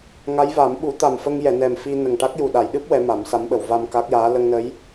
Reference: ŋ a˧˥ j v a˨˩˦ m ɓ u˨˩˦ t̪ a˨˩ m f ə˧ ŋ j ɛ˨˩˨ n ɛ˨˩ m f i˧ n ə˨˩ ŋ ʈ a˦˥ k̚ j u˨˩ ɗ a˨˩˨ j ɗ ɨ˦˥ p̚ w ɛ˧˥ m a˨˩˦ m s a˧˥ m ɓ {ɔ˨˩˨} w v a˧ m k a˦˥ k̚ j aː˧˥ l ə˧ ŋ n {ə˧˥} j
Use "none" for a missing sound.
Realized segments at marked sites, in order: ə˨˩˨, ə˧˥

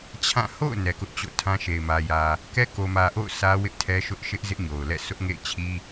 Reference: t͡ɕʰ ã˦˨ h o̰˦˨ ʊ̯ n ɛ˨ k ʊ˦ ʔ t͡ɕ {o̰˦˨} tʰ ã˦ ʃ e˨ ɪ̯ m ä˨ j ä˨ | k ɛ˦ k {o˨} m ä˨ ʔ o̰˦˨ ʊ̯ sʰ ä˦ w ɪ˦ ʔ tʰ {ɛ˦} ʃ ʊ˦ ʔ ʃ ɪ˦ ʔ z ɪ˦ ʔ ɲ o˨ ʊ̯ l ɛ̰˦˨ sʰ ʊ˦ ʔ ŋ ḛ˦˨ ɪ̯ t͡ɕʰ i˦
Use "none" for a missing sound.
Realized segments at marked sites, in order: o̰˦˨, o˨, ɛ˦

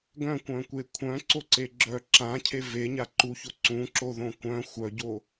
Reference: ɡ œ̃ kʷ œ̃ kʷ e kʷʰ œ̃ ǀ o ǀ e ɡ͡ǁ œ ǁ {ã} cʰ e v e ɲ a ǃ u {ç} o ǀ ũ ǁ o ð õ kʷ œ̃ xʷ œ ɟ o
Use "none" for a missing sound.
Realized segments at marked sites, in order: ã, ç

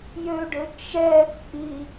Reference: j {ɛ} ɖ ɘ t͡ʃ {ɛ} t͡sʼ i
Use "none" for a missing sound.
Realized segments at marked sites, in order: ø, ɛ

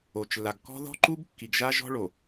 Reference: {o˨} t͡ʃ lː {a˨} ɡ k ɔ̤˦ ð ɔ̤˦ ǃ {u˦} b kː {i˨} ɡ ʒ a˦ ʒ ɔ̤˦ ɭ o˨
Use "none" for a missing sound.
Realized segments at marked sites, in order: o˨, a˨, u˦, i˨

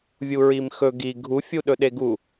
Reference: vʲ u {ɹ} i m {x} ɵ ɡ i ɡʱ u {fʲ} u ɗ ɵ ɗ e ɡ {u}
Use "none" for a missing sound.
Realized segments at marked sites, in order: ɹ, x, fʲ, u

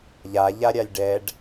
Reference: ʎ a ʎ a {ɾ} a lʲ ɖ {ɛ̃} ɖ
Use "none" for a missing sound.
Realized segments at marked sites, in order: ɾʲ, ɛ

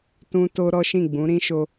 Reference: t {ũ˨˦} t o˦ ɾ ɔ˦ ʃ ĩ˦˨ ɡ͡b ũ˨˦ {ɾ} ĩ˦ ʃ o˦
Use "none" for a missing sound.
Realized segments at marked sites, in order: ũ˦, ɾ

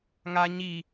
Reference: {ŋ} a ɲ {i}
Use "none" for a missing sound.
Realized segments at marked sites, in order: ŋ, i

